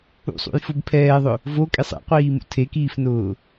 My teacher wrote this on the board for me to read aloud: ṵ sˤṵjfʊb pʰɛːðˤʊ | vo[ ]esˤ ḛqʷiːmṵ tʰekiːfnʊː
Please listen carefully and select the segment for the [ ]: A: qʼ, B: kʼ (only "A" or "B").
B